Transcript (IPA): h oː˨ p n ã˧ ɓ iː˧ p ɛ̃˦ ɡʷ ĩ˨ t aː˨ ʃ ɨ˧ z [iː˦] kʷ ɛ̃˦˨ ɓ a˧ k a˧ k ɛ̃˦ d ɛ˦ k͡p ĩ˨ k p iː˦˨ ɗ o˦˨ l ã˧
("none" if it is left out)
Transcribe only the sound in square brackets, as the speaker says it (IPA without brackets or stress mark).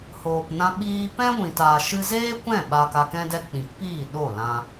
eː˦